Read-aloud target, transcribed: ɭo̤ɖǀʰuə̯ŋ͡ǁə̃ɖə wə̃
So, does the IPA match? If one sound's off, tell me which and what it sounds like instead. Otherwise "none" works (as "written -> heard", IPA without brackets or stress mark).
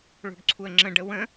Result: none